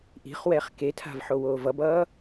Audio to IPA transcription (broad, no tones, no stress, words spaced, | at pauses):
ʔi̤χ wɛːχketʰa̤vħo woːvʌbʌː